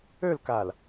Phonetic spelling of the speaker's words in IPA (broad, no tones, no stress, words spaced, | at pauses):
ølkal